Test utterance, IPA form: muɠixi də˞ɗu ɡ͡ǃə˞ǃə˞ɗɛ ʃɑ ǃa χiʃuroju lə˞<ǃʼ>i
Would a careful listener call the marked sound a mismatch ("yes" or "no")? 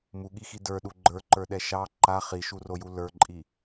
no